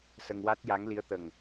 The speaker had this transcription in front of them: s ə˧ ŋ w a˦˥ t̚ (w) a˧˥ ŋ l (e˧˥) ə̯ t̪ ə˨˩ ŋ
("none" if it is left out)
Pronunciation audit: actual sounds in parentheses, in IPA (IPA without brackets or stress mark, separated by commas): j, i˧˥